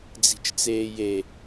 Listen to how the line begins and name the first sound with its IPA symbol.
d͡z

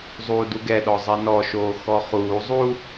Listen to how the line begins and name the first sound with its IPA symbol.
zˤ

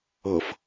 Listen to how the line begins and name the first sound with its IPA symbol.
ɤ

